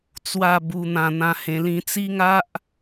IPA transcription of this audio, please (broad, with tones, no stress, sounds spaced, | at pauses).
t͡s w a˥˧ b u˧ n̪ ã˧ n̪ ã˧ h ẽ˧ l ĩ˧ t͡s i˦ ŋ a˦ ʔ